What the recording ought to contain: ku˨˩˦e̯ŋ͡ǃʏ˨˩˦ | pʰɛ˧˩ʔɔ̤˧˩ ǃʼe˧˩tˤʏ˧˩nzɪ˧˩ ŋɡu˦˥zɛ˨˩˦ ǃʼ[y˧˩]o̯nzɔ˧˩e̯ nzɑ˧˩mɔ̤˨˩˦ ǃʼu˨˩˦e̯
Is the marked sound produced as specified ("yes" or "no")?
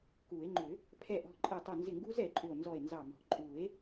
no